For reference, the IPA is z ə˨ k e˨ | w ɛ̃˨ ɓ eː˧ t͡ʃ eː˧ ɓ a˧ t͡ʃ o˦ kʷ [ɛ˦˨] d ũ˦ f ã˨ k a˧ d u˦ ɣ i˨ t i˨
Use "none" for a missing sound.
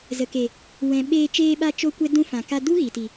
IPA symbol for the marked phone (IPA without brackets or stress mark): ɛ˦